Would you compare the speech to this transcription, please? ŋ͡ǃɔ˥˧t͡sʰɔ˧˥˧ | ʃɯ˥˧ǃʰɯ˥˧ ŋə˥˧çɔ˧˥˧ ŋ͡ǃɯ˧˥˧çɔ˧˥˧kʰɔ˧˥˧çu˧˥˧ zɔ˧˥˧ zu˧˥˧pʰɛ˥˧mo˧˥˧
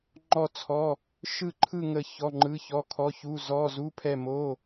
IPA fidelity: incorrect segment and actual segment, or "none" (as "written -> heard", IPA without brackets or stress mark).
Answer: none